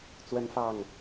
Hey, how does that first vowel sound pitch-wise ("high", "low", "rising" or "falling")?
high